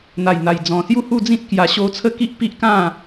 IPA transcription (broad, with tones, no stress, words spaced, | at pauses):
n̪a˨˩jn̪a˨˩j d͡zɔ̃˨˩sju˥˧hu˥˧d͡zĩ˦t̚ kja˧ɕo˦ t͡sʰə˦ki˦ʔ pi˦ʔkã˥˧